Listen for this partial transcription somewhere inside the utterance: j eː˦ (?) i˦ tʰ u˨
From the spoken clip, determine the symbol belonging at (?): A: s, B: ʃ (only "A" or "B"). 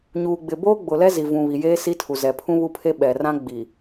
A